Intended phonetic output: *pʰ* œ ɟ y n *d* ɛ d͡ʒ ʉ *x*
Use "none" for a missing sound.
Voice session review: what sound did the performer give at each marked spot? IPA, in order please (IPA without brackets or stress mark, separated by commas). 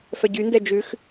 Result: f, d, x